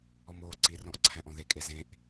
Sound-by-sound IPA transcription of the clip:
ɔ m oː ǀ i r ɔ̃ ʔ ǀʰ æ̃ ʔ ɔ̃ ð e kʼ e z ẽ ʔ

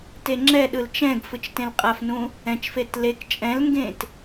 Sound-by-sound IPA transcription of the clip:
t e ŋ͡ǁ ɛ ɗ ɯ l t͡ʃ ɛ̃ ɡ f ɯ t͡ʃ t ẽ l qʼ a f n ũ | ɛ̃ t͡ʃ f e t l e k t͡ʃʼ ɛ̃ l ŋ ɡ ẽ t

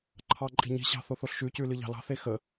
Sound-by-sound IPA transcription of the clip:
ǃʰ ɑ ǃʼ i̤ ɲ i̤ ɕ ɑ̤ θ o θ o ɬ ʃ ʉ c ʉ l ɨ ʎ ɑ̤ l ɑ̤ θ e x ə

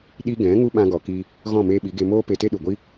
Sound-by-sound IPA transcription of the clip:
ɗ i˧ ɡ ɛ̃˨˦ ŋ u˦ ɓ ã˧ ɡ ɔ˨ k i˧ | ɣ ɔ̃˦˨ m eː˧ ɓ i˨˦ ɡ e˧ m oː˦ p e˧ t e˦ ɗ u˨ ɡʷ i˦

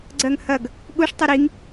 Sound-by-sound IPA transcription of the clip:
ɡ͡ǀ ɜ ŋ h ɐ ɡ | ɠ u ʂ tˤ ɛ ɾ i ŋ

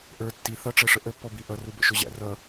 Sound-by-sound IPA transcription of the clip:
ʔ ə˞ tː i θ ʌ ʈ͡ʂ ɛ ʂ ə ʔ ə pː ɔ b i ʔ ʌ r u b ə̰ ʃ ʊ ʑ æ̰ r ʌ

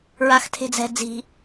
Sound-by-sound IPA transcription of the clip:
ɹ a x tʰ e̤ d͡z ɛ̤ d͡z i̤

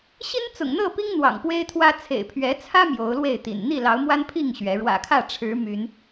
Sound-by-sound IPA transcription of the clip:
ɕ i˦ n t͡s ʊ̰˨˩ ŋ n̪ ɤ˥˨ p i˦ ŋ n̪ w ɑ̰˨˩ ŋ p w e˦ ɪ̯ t̪ʰ w ä˦ t͡sʰ ḛ˨˩ ɪ̯ pʰ ɥ ɛ˨˦ t͡sʰ ä˦ m j o˨˦ ʊ̯ l w e˥˨ ɪ̯ t̪ ḭ˨˩ n n̪ i˥˨ l ɑ˨˦ ʊ̯ m w a˦ n pʰ i˥˨ ŋ ɕ ɥ ɛ˨˦ ɻ w ä̰˨˩ kʰ ä˥˨ ʈ͡ʂʰ ɻ̩˨˦ m y˨˦ n

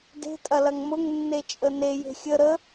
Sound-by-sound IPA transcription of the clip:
d e̤ tʼ ɐ l ɐ ŋ m ʊ ŋ nː e t͡ʃʼ ə n e j e̤ xʲ ə ɾ ə

